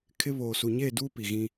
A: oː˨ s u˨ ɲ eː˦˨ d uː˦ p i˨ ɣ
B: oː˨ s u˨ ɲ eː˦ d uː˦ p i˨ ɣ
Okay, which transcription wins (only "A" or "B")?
A